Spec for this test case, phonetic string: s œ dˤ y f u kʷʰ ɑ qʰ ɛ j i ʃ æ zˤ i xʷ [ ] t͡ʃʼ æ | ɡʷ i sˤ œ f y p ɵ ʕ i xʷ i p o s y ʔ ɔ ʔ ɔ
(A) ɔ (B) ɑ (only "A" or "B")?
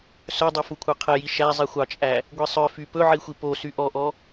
B